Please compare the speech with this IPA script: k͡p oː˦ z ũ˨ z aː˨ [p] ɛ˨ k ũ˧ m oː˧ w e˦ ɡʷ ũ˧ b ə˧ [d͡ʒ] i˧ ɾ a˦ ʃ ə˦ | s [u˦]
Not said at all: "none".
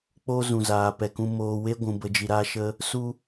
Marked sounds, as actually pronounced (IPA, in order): p, d͡ʒ, u˦

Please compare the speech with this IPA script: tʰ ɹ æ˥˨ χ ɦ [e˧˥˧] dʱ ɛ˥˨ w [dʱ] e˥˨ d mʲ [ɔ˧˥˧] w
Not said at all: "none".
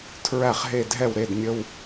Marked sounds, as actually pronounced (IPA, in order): e˥˨, ɾ, ə˧˥˧

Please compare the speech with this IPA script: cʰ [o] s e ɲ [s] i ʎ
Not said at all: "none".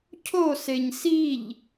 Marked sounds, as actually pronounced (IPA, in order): o, s

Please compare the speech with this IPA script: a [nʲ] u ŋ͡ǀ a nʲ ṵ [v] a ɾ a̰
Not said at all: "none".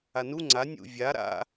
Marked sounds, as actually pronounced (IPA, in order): n, vʲ

